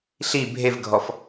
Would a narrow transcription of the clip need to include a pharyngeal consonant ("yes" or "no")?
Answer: no